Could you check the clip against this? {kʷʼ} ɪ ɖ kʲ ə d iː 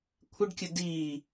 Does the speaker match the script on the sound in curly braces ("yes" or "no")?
no